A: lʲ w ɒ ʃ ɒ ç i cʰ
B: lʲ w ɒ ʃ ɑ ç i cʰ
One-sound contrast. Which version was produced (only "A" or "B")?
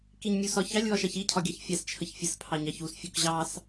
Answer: B